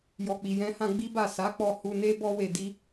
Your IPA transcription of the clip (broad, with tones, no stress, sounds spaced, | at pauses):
j ɔ˨ k͡p i˨ j ɛ̃˨˦ h ã˧ ɡ͡b i˦ b a˦˨ s a˨˦ k͡p ɔ˧ h u˧ n e˦ b ɔ˦ w e˧ d i˦